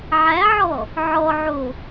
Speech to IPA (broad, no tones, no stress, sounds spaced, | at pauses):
ʕ æ ʕ ɔ | ʕ ɔ ʕ o